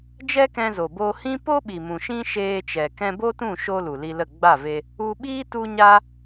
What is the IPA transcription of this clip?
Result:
d͡ʒ ɛ˦ k ɛ̃˧ z o˨ b o˧ h ĩ˦ p o˦ ɓ i˨ m ũ˨ ʃ ĩ˦ ʃ eː˧ t͡ʃ ɛ˨ k ɛ̃˧ b o˦ t ũ˦˨ ʃ o˧ l u˨ l i˧ l ə˦˨ ɡ͡b a˦˨ v e˧ | u˧ ɓ iː˦ t u˦ ɲ a˦

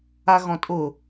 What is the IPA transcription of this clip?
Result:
a ɣ ɔ̃ tʼ ʊ

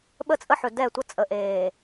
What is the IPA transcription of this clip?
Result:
ɓ ə˦ t͡sʼ ə˦ ħ ɵ˨ d ɛ˦˨ tʷ ʌ˦ t͡sʼ ə˨ ʔ eː˨

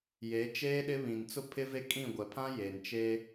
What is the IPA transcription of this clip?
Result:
j e˨˦ t͡ʃ eː˦ ɗ ɪ˦ β ĩ˨ n t͡s ʊ˦ pʰ ɪ˦ v e˦ kʼ ĩ˦˨ ɡʷ ɛ˨ pʰ ã˦ j e˨ n t͡ʃ e˦

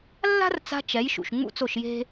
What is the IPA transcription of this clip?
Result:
lː a̤˦ r t͡s a̤˧ t͡ʃ ɛ˨˦ j ʃ ṵ˨ ʃ ŋ͡m ṵ˦ t͡s o˦˨ ʃ j e̤˦

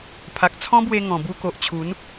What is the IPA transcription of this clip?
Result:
pʰ a˨ k̚ t͡sʰ ɔ̃˦ b w e˧ ŋ ɔ̃˨˩ b u˧ k o˨ ʔ t͡ɕʰ u˨˦ n

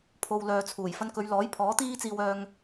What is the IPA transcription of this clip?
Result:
pʰ o˨ w l œː˨ t͡sʰ uː˨˩ j f ɐ˧ n k ɵ˨˧ ɥ l ɔː˨˥ j pʰ ɔː˨˥ t̪ iː˥ t͡s iː˧ w œː˧ ŋ

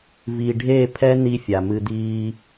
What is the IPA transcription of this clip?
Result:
v i˨ ɖʱ e˦˨ pʰ ɛ˦ n̪ i˦ fʲ a˨ m ɨ˦ d̪ iː˦

